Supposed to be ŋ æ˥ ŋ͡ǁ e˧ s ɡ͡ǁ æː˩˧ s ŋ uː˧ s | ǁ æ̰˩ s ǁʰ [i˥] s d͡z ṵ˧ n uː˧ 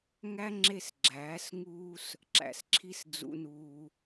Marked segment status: correct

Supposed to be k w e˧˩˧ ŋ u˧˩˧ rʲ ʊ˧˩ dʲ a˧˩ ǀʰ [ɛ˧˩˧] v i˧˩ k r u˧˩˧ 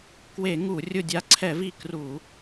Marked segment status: correct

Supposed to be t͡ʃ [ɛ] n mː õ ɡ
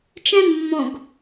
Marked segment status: incorrect: ɛ̃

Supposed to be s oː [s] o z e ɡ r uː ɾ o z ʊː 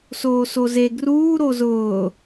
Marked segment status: correct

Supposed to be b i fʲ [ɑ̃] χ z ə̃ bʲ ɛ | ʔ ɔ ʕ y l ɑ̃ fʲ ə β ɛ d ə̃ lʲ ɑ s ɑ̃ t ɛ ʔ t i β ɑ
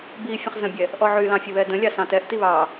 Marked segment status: incorrect: ə̃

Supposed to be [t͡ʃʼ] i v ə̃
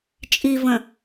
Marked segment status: correct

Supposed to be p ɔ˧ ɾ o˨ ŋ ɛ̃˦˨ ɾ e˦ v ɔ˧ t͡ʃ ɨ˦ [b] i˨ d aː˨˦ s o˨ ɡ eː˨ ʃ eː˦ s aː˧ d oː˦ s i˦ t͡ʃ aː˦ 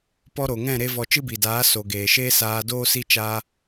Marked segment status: correct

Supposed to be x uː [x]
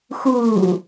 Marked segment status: incorrect: none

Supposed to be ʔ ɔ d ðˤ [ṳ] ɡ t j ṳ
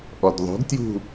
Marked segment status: incorrect: o̤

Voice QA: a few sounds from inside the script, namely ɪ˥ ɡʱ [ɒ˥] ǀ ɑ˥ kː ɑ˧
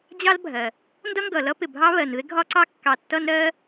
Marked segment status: correct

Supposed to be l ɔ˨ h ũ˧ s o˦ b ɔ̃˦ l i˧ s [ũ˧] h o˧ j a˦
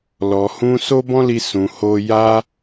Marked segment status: incorrect: ũ˨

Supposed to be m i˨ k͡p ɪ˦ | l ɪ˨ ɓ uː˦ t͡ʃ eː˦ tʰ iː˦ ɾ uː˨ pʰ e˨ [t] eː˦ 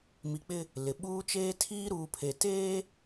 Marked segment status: correct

